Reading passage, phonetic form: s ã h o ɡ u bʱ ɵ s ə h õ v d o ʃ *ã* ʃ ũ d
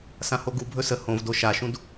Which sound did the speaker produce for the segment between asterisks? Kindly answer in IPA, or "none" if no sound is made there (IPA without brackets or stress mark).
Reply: a